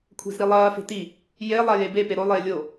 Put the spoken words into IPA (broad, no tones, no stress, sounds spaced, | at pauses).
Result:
kʷʰ e̤ z ɾ i lˠ ɐː f e̤ t i | j e lˠ a j e b e p e ɾ o lˠ eː lʲ o